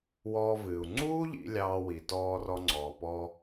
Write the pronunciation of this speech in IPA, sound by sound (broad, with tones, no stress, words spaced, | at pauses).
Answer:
wɔː˧vɨː˩u̯ ŋ͡ǀuː˥ʎḭ˧ lʲɑː˧wi˩tɔː˧ rɔ˧ŋ͡ǀɔː˩pɔː˧